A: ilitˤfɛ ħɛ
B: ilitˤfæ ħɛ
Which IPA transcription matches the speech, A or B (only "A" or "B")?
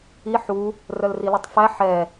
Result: B